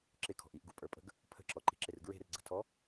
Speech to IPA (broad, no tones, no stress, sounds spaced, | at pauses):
ǁ ɪ kʰ ɔ̤ ʔ i ʔ ɡ u pʼ ə˞ pʼ ə̤ ɡ | pʰ ə̤ ǁ ɔ ǃ i̤ ǁ ɪ r ɡ ɹ e̤ r ɡ͡ǀ ə̤ tʰ ɔ